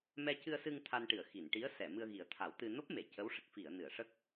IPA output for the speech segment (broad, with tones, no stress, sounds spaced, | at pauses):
m ɛ˧ c ɨ˧ ə̯ s ɨ˧ ŋ t̪ʰ a˧ n ʈ ɨ˨˩˨ ə̯ x i˨˩˨ n ʈ i˧˥ ə̯ s ɛ˨˩˨ m ɨ˧ ə̯ ɣ i˨˩˦ ə̯ t̪ʰ a˨˩˦ w t̪ ɨ˧ n o˦˥ p̚ m e˨˩˨ c ə˧˥ w ʂ ə˨˩ k̚ f i˨˩˨ ə̯ n ɨ˨˩˨ ə̯ ʂ ə˦˥ k̚